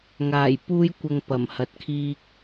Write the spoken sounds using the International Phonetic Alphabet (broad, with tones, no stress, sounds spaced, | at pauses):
ŋ aː˨˩ j p uː˧ j kʷ ɐ˨ ŋ p ɐ˨˩ m h ɐ˨˥ t̚ kʰ iː˧ k̚